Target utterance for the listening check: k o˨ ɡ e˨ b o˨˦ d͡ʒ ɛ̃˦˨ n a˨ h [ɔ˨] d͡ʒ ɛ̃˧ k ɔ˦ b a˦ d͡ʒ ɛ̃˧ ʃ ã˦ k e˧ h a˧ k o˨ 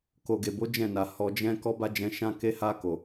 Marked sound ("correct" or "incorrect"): correct